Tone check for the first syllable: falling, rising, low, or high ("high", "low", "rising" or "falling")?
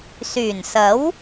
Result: low